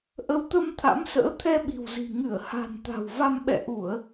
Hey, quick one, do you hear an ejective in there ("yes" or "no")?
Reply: no